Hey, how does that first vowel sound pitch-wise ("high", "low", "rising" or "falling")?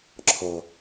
low